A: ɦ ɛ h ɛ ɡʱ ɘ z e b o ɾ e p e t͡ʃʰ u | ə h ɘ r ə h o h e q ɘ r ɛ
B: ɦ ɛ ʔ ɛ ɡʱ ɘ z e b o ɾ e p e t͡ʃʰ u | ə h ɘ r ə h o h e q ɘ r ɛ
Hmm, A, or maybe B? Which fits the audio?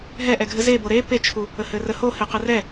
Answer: B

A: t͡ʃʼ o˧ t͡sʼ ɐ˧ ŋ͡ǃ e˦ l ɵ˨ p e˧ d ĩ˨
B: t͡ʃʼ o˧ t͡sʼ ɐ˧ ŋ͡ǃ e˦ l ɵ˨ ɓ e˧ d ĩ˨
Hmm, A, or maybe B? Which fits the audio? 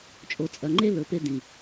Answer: A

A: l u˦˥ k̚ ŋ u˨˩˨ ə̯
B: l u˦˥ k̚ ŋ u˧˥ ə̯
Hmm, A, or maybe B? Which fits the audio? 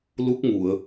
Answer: A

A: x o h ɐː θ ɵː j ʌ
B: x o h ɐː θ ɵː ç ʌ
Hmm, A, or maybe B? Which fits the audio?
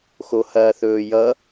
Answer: A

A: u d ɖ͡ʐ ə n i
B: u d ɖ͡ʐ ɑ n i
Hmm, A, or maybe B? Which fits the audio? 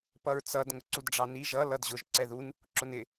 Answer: B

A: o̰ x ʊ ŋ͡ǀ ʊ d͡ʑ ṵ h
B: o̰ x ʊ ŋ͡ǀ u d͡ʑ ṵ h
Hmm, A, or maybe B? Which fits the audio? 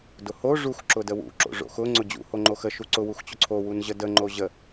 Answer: A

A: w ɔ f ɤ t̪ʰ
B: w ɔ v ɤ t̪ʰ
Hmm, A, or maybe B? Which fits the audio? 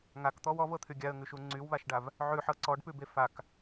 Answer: B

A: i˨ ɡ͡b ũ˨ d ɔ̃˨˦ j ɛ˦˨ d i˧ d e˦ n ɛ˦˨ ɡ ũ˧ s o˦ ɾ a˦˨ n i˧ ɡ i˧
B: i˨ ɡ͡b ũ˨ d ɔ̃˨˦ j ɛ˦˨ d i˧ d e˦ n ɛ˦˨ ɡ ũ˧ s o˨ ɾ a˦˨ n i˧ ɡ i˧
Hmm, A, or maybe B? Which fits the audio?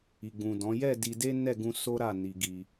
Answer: A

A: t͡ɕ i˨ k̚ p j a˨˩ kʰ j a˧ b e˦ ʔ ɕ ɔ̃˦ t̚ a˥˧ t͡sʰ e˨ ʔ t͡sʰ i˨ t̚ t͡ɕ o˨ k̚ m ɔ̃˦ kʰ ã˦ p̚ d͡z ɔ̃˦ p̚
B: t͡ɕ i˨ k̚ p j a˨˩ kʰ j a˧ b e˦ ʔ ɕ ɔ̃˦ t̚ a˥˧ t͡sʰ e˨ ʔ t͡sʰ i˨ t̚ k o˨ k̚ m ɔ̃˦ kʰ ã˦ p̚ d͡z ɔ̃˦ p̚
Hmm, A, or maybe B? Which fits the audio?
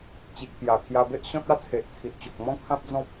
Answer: A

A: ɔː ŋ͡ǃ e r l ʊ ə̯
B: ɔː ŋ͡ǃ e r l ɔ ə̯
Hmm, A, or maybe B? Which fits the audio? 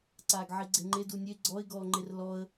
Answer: B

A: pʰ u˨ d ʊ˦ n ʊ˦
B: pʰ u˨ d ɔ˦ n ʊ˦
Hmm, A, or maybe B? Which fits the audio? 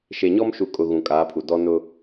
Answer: B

